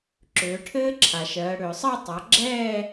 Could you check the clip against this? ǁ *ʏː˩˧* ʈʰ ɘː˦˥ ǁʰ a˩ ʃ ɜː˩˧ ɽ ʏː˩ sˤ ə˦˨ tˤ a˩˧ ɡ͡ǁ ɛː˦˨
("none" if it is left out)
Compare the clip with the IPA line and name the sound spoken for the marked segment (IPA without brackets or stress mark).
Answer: ʏː˩˧